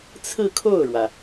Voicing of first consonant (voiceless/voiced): voiceless